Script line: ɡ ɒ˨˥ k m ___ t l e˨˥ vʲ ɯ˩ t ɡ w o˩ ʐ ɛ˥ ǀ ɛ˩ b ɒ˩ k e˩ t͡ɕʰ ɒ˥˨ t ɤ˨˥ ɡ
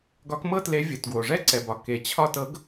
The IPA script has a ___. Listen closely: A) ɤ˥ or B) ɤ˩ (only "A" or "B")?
A